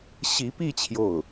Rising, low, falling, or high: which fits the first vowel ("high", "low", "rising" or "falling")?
rising